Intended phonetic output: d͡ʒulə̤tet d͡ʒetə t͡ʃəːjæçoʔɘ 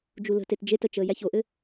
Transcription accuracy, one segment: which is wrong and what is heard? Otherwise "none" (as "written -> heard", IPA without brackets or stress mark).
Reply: none